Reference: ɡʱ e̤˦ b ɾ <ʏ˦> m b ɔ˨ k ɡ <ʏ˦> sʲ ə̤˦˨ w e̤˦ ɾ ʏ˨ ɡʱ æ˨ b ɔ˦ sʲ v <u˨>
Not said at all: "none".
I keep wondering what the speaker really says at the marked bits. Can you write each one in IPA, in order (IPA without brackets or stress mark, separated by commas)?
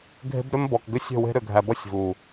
ʏ˦, ʏ˦, u˨